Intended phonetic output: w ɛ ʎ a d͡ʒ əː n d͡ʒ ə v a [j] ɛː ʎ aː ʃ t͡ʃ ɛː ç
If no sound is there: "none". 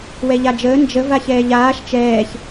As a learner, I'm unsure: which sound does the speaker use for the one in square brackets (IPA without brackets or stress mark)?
ç